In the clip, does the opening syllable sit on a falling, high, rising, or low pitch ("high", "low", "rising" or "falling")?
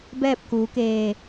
falling